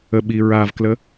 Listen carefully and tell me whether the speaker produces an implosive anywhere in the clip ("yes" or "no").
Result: yes